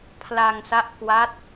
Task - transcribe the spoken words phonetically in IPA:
pʰla˧ŋsa˦˥ʔkwa˦˥t̚

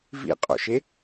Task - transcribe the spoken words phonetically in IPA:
vḭqʼo̰ʃe

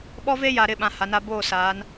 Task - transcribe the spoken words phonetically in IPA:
ɓɔ˦ve˦ja˨ ɾɪ˦˨ɓã˨ ha˨˦na˦ boː˦˨saː˨˦n

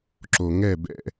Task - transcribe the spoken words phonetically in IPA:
ǁo˨ ŋɛ˦˨bɛ̰˨

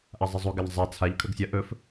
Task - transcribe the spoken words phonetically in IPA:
ʔazˤɨzˤu ɡɐʎzˤa t͡sʰaʎ kʰɵɡsʲɐ ʔɵf

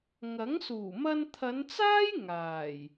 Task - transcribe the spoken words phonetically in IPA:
ŋɐ˨˥ŋsuː˨˩ mɐ˧nt̪ʰɐ˨˧nt͡saː˥j ŋaː˨˩j

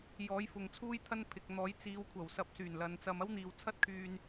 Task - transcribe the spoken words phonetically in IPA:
jɔː˨˥jfʊ˨ŋt͡sʰuː˥jt̪ʰɐ˥n pʰɪ˨k̚n̪ɔː˨˥j t͡siː˨˧wkʷʰɐ˨˩wsɐ˨p̚ syː˨˩nlɐ˨˧nt͡sɐ˧m ɐ˥wn̪iː˨wt͡sʰɐ˥t̚ kʰyː˧n

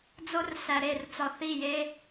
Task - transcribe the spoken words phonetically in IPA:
d͡zo˥rsæ˧ɾe˥˧r t͡sɒ˧θi˥˧je˥

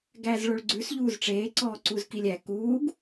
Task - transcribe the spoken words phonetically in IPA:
ɡæːzɭoɭɡ͡ǀʉs ʎuːzʈ͡ʂeː ǀɔːǀuzkilʲæ kuːɡ

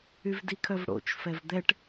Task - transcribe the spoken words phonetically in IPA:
yvdikʰœvɽo̰t͡ʃ fɛvd̪ɛʈ

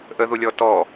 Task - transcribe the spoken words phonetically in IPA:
ʔəðulʲɔ tɔ

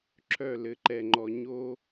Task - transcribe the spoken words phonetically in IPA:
ǁʰœ˦˨lɘ˨ǃɛ˨ŋ͡ǃɔ˨ ɲo˦

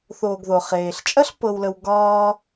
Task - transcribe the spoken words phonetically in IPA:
θoː˨ɡðo˩χeː˩ɬ t͡ʃʼɐ˥ɬpɤ˨wlə˨w ɡɒː˦

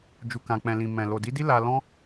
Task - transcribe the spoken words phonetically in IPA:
d͡ʒu˨kã˨k͡pɛ̃˨ lĩ˨mɛ̃˨ lo˨di˨˦di˦ la˧lɔ̃˦

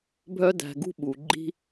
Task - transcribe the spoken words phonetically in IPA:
bʱœ˦dæ̤˧ ɡṳ˦ɓu˨ɡ͡ǃi̤˦

